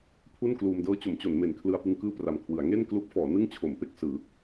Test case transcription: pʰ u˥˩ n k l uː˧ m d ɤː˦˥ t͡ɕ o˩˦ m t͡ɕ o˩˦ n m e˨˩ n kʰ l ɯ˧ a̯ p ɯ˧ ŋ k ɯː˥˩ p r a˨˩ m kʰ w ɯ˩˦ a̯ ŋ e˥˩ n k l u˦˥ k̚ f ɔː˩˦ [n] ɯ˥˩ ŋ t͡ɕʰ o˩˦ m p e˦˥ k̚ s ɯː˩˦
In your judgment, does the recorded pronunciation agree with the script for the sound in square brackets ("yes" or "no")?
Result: yes